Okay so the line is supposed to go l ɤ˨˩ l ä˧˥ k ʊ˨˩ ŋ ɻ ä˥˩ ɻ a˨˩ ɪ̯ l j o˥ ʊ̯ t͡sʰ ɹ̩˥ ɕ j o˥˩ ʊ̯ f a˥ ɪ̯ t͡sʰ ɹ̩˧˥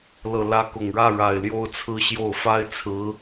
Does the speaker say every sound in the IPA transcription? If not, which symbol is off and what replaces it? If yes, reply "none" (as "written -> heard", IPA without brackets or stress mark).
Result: none